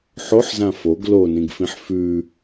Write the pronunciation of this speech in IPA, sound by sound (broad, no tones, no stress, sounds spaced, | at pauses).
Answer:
ħ o ħ z ã f o ɡ l o n ĩ ɡ f ĩ ħ f ʉ